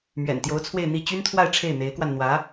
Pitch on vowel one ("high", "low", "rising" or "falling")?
low